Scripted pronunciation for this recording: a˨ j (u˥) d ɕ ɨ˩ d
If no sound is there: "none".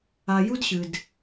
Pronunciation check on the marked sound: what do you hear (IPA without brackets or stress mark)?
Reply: u˥